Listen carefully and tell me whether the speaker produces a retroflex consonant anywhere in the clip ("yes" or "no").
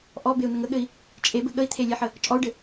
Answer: yes